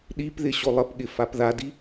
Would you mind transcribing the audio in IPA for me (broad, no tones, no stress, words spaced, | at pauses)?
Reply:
ɗipðɪ ɕolˠəpɠɪ fapðadi